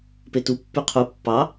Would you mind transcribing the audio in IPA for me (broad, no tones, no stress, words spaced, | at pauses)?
petu pːyqʰu pːɑ